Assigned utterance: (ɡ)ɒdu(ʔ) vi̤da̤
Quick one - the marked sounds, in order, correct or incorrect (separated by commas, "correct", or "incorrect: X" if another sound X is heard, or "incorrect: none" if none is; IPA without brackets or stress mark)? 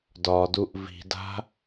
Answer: incorrect: d, correct